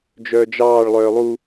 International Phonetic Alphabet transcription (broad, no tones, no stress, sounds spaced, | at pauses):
d͡ʒ œː d͡ʒ ɑː ɭ lˠ œː lˠ u